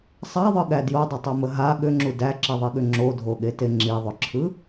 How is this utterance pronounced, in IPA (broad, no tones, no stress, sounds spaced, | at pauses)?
sˤ a ðˤ ɯ ɠ æ d j o dˤ ʏ tˤ o m ə ɦ a ɠ ʏ ŋ͡ǁ u d æ ǁ i ðˤ i ɠ ʏ ŋ͡ǁ o dʱ o ɠ e t e ŋ͡ǁ i ðˤ ʏ ǁʰ ɯ